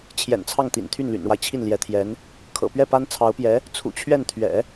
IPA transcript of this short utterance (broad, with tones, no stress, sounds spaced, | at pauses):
t͡ɕʰ j ɛ̰˨˩ n t͡sʰ ɑ˥˩ ŋ t̪ ḭ˨˩ n t̪ʰ y˥˩ n l y̰˨˩ n ɻ w a˦ ɪ̯ t͡ɕʰ i˥˩ n l j ɛ˧˥ t̪ʰ j ɛ˧˥ n | kʰ ɤ̰˨˩ p ɥ ɛ˥˩ p a˥ n t͡sʰ ɑ˧˥ ʊ̯ p j ɛ˧˥ | t͡sʰ ṵ˨˩ t͡ɕʰ ɥ ɛ˥˩ n t̪ʰ ɥ ɛ̰˨˩˦